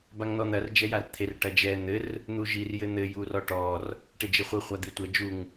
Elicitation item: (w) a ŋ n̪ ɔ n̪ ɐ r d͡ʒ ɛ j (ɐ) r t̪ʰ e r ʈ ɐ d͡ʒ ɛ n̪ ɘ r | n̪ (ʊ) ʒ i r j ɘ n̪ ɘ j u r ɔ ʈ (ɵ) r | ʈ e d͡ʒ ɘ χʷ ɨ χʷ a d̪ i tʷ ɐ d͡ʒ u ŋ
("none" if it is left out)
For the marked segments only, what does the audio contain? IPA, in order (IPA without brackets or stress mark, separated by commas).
b, a, u, ɔ